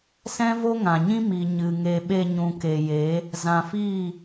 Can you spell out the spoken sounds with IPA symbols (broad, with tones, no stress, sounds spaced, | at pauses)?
s ɛ̃˦ v o˦ ŋ ã˨ ɲ ĩ˦ m i˨ ɲ ɨ˨ ŋ e˧ ɓ e˧ ɲ ũ˨ k e˨ j e˨˦ | z ã˨ f iː˦˨